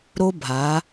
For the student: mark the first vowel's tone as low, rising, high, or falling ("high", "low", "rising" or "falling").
high